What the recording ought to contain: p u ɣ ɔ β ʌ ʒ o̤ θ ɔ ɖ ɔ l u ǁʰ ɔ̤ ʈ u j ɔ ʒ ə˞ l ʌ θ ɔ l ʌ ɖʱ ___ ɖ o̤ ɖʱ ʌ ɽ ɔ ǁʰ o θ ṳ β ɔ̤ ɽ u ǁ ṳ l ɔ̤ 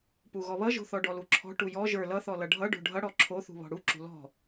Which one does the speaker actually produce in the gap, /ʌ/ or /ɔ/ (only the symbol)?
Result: ʌ